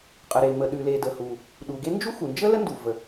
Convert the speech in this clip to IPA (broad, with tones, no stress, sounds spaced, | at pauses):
qʼ ə˩ ɾ e˩ m ə˩ ɗ ʉ˩ l e˩ d ə˩ h u˩ | ɗ u˩ ɡ e˥ n d͡ʒ u˥ x u˩ n d͡ʒ ə˥ l ə˥ n d u˩ v ə˩